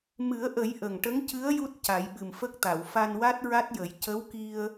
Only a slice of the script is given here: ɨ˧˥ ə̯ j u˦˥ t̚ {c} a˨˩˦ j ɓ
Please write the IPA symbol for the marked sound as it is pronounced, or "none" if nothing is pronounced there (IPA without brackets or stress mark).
c